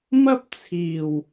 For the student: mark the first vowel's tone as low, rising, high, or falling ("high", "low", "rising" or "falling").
high